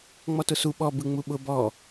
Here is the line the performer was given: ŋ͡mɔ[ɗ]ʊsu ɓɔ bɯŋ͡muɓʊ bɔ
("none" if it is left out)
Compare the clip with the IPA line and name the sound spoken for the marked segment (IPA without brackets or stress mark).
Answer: t